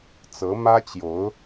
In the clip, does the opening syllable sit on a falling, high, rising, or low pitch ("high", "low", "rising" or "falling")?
rising